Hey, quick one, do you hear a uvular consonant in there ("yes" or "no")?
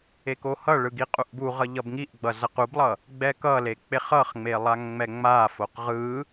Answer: yes